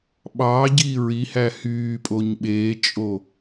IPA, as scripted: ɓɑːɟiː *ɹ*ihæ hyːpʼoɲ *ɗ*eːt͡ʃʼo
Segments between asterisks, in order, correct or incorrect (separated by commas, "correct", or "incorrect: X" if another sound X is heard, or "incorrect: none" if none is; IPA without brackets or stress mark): correct, incorrect: ɓ